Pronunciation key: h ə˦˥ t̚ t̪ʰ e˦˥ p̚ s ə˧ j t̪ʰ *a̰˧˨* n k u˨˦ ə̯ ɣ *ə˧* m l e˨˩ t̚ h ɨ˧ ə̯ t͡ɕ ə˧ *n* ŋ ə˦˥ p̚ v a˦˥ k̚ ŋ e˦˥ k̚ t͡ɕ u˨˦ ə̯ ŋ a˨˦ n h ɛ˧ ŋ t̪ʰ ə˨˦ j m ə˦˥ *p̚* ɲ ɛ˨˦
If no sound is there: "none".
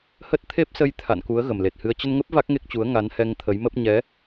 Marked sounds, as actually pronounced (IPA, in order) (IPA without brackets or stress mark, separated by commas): a̰˧˨, ə˨˩, n, p̚